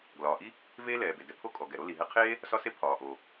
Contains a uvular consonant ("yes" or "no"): yes